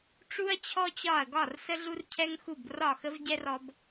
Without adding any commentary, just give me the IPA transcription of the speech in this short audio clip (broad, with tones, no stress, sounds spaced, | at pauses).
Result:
ʈ͡ʂ u˦ ɐ̯ t͡ɕʰ ɔ˦ t͡ɕ ɒ˦˨ ɐ̯ ɡ ɒ˦˨ r s ə˦ ɮ u˦ r cʰ ɛ˦ ŋ x u˦˨ b r ɒ˦˨ x ə˦ v ɟ ɛ˦ r ɔ˦ b